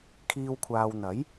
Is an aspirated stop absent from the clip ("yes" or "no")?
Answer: no